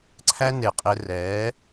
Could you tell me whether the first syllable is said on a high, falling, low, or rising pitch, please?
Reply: high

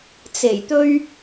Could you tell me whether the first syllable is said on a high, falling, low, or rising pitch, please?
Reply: low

